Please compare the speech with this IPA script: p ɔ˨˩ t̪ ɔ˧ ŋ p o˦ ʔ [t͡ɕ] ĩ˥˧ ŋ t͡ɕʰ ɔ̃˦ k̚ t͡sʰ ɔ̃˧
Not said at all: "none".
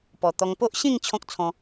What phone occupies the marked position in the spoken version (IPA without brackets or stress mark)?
ɕ